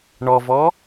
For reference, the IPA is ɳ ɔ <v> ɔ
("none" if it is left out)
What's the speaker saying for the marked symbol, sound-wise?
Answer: v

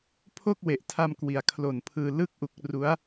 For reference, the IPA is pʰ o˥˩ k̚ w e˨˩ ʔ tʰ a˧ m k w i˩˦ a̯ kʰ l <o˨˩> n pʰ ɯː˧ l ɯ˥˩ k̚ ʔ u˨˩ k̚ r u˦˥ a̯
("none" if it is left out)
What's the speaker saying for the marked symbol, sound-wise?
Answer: o˨˩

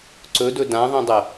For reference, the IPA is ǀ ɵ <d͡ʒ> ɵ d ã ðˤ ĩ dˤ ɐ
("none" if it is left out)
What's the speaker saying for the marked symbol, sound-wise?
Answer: d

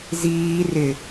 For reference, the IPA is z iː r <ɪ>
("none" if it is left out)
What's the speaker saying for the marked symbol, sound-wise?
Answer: ɪ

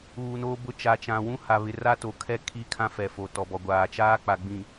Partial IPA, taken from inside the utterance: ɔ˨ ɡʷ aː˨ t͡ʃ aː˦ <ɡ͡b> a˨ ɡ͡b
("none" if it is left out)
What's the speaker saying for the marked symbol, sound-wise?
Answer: k͡p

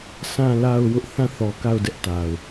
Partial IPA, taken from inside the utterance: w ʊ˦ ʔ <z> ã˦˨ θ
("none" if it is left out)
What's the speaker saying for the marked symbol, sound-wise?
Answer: θ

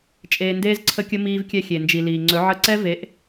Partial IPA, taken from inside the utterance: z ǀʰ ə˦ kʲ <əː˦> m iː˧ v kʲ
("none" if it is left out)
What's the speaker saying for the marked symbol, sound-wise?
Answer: ə˦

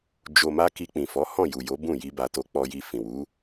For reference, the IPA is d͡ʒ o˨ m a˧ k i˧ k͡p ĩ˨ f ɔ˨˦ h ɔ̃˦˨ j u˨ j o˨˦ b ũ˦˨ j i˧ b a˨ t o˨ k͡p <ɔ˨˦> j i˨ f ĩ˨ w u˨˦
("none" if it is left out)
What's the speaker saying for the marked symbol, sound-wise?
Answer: ɔ˨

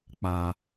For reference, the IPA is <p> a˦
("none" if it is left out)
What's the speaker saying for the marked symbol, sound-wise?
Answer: k͡p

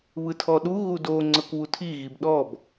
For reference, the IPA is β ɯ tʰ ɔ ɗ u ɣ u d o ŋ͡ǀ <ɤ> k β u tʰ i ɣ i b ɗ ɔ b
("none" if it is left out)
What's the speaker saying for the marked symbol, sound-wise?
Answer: ɤ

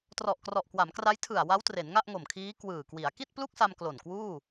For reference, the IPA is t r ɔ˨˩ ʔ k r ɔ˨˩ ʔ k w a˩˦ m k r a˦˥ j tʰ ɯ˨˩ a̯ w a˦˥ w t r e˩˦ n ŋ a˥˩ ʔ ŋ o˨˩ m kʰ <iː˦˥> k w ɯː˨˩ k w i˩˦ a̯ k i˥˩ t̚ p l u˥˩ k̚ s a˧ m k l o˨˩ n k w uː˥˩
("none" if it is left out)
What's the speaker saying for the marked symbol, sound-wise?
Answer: iː˦˥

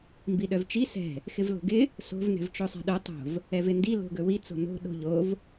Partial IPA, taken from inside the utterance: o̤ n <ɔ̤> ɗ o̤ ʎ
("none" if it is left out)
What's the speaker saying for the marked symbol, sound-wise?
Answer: o̤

